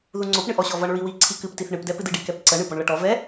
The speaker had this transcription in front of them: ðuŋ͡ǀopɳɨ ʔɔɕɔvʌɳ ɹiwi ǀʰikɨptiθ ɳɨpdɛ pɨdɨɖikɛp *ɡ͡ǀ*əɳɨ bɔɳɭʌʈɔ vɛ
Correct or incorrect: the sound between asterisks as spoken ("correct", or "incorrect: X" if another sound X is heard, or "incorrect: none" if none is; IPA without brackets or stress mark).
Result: incorrect: ǀ